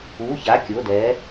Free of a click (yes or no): yes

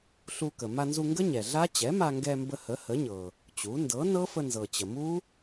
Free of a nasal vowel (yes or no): yes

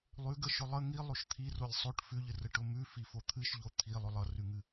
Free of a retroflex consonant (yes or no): no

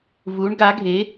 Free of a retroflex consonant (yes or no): no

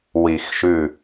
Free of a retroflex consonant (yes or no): yes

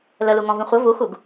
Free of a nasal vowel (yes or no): no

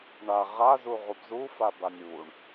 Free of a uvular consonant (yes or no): no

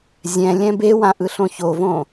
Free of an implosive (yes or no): yes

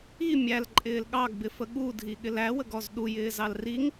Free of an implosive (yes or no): no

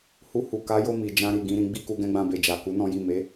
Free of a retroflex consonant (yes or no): yes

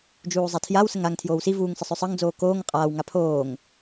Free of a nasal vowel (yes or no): yes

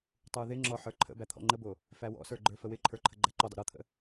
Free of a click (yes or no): no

